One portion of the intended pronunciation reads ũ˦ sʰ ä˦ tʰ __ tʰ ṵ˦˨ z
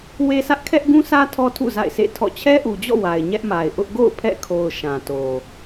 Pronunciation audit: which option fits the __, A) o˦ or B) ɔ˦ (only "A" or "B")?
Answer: B